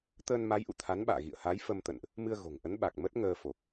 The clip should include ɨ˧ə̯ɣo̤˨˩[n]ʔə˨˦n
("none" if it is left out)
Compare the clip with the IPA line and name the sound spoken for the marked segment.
ŋ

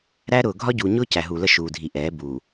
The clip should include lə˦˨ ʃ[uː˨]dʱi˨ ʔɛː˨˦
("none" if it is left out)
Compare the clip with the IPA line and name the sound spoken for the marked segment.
uː˨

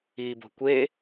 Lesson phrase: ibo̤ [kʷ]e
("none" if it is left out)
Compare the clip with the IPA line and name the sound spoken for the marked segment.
kʷ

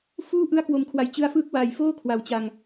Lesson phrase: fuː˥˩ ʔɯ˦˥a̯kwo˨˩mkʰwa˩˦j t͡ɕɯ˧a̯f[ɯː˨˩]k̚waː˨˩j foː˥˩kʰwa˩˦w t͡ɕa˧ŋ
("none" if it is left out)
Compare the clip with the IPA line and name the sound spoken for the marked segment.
ɯː˦˥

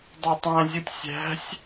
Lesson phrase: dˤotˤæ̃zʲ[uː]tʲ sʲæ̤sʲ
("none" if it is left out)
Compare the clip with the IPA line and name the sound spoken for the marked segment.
u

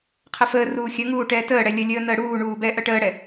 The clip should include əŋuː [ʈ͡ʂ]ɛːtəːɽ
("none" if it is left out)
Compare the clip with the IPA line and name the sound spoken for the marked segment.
ʈ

